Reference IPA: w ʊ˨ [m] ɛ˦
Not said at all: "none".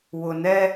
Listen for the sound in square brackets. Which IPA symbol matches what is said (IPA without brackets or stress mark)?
n